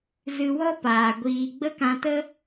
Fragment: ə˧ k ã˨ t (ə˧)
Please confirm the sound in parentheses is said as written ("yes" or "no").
yes